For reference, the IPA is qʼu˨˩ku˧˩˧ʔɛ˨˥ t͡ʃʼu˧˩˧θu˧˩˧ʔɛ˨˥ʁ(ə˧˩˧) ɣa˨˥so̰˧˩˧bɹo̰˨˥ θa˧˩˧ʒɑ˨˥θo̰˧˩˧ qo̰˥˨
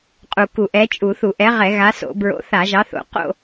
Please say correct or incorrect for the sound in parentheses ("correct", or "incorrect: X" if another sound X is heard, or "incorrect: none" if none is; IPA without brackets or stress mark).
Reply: incorrect: ɛ˧˩˧